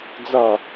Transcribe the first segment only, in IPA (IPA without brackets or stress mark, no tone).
d͡z